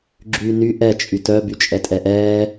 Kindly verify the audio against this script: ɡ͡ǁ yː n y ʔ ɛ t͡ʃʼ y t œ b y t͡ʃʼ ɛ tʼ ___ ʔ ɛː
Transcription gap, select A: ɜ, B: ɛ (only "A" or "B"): B